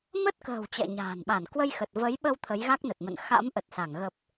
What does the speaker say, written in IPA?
mə˦˥t̚kə̤ː˨˩w t͡ɕɛ̰˧˨ɲa̤ː˨˩nɓa˧˩n kwə˧jxə˨˩t̚və˨˦jɓə˧w t̪ʰə˨˦jɣa˦˥k̚nə˨˩t̚mə̰˧˨n xa̰˧˥mʔə˨˩t̚sa˧˩ŋ ɣə˨˩p̚

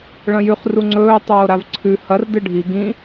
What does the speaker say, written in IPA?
ɭɐ̃jʉχ ruŋ͡ǀɵː tˤoːɾavǀʰʉ hɐr dɨɖʱi ɡĩ

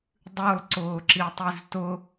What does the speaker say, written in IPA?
dˤʉlˠǀʊːǁitˤiz tʊ

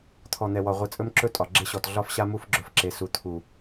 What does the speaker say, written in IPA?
t̪ʰɔ˨n̪ɛ˨wɒ˨ ʁʷi˨t͡sʼɵ˦mǁɵ˦ tʼɒ˨ɡ͡ǁe˦ɕɔ˨t ɮɒ˦fɕa˦ mu˦fɡ͡ǁɵ˨fǁe˨ su˨t̪ʰu˨

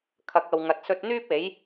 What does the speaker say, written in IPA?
kʰɐ˨˥k̚ɐ˨w ŋɐ˨t̚sɵ˧t̚n̪yː˥p̚e˨˥j

